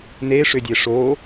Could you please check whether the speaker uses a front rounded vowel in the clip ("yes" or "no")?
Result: yes